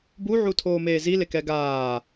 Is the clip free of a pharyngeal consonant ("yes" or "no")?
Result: no